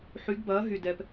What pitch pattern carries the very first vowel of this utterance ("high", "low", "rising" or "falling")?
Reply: rising